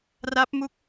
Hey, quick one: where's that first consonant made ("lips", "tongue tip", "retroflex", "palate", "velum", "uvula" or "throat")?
tongue tip